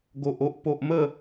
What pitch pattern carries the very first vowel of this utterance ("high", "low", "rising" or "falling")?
low